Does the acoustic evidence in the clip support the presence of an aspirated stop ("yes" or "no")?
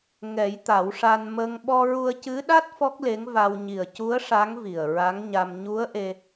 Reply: no